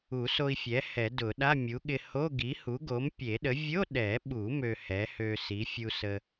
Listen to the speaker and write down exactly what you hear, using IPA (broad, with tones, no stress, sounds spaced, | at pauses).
u˨˩˦ s o˧ i̯ fʲ ɛ˩˥ h ɛ˨˩˦ d ʊ˨˩˦ ɗ a˧˥˧ mʲ u˩˥ ɠ ɪ˧ h o˧˥˧ ɡ i˩˥ h u˩˥ ɡ o˩˥ m pʲ e˨˩˦ ɗ ə˩˥ vʲ o˧˥˧ ɗ ɛ˨˩˦ ɓ u˨˩˦ m ø˧ h ɛ˩˥ h ø˧ s i˩˥ fʲ u˧ s ə˧